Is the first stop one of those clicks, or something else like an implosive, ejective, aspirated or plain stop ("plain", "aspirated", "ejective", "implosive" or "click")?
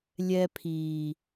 aspirated